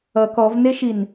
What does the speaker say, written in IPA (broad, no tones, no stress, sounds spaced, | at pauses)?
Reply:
ʌ k ɔ v n e ʃ i n